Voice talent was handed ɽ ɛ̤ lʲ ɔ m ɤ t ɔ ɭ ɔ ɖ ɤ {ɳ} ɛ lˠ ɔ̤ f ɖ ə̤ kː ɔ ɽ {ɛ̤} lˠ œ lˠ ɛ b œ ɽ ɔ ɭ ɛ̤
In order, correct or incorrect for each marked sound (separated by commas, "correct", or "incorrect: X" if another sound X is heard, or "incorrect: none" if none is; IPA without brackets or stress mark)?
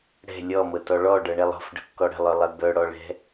correct, incorrect: ə̤